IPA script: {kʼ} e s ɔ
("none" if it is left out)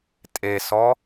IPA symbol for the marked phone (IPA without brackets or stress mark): tʼ